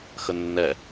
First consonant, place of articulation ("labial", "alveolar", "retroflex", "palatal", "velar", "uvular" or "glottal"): velar